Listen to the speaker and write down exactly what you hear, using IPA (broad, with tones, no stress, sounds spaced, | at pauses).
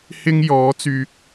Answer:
h ɪ˥ ŋ j ɔː˨˥ t͡s yː˧ k̚